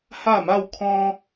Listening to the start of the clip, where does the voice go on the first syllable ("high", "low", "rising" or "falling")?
falling